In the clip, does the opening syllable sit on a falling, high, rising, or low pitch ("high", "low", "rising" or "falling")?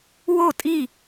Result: falling